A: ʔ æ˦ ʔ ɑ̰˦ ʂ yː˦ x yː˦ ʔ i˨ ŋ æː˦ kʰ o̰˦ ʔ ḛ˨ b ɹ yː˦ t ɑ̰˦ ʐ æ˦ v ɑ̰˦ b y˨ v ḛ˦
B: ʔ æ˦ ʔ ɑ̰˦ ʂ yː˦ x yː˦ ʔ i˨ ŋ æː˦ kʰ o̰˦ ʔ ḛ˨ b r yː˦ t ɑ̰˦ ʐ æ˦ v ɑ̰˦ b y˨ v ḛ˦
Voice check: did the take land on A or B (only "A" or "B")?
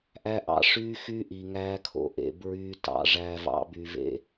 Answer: A